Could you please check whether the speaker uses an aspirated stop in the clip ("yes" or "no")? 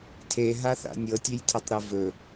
yes